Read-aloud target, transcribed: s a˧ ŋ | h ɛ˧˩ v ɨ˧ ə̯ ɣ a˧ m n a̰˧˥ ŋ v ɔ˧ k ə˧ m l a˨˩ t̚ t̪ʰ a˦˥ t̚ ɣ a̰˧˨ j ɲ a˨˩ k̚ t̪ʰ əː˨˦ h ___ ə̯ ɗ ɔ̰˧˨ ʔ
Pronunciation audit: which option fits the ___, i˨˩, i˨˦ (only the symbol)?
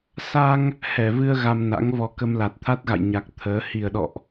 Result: i˨˩